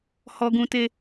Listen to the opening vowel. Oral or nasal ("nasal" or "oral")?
oral